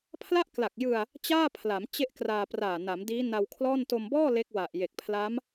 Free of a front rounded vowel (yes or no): yes